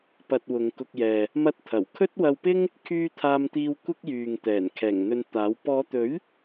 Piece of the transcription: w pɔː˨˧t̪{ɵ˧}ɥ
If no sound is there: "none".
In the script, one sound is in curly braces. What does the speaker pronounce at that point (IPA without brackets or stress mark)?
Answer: ɵ˨˥